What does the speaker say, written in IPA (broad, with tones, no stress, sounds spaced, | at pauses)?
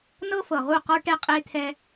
n ɤ˦ f ɤ˨ ʁ u˦˨ q ɔ˦ ʈ ɛ˦ qʼ e˦ t̪ʰ ɛ˦